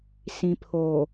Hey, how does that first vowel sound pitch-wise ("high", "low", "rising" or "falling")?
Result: low